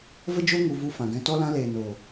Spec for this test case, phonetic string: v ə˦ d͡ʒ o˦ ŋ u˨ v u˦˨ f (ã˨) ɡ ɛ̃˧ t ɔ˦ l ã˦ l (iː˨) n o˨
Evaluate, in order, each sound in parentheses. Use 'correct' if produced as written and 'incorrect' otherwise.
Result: correct, incorrect: eː˨

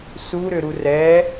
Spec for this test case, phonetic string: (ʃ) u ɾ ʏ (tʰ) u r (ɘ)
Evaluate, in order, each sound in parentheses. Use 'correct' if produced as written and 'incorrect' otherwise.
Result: incorrect: s, incorrect: ɾ, incorrect: ɛ

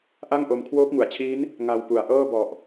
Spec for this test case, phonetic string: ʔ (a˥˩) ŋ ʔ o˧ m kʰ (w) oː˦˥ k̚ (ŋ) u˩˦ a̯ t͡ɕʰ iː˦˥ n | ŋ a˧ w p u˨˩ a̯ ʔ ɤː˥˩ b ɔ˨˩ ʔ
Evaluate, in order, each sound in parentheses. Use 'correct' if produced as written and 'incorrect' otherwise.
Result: correct, correct, correct

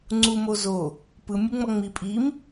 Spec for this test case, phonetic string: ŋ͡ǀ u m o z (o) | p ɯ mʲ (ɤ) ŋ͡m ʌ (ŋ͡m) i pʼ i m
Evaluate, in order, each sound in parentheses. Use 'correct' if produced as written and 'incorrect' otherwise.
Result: correct, incorrect: ɯ, correct

